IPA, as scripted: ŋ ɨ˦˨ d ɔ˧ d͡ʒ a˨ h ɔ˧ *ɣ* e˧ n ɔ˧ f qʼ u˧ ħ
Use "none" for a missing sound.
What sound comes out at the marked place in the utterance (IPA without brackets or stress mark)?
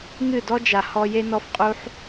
j